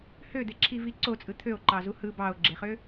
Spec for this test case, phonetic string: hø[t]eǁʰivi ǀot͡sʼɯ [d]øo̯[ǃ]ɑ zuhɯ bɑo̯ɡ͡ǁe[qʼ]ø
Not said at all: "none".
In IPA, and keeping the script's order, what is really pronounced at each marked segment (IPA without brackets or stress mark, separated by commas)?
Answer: d̪, t̪ʰ, ǃ, χ